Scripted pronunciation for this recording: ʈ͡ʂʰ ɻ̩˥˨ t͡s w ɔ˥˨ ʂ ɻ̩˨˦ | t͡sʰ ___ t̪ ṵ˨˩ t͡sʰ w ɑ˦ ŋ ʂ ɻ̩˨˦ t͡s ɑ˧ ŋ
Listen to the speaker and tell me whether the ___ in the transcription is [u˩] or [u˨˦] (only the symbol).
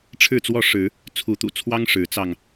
u˨˦